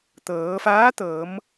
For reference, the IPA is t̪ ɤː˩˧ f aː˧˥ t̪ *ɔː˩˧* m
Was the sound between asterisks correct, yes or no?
no